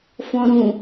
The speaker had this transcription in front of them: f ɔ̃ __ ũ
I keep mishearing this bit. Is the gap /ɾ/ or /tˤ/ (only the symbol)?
ɾ